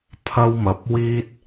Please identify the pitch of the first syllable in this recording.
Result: high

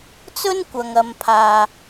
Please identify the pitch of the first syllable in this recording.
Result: high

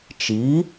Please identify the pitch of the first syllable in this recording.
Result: rising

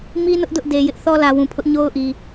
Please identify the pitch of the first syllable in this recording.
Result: high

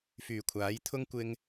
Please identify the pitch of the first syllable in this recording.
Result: low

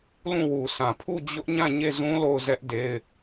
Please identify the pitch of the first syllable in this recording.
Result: falling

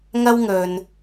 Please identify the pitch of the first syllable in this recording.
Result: high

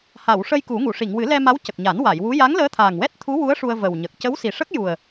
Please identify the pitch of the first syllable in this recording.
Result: low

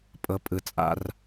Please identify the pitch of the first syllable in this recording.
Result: low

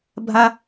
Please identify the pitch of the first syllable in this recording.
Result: high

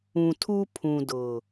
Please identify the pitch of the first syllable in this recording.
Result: low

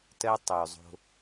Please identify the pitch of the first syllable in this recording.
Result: high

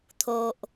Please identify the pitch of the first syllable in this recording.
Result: low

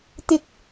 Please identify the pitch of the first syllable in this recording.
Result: high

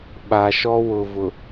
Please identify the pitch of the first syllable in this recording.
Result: low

